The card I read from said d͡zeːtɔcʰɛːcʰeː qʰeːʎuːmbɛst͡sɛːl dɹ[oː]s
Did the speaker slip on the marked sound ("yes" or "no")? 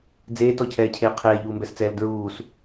yes